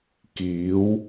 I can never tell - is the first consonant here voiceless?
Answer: yes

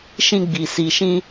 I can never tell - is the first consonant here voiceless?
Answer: yes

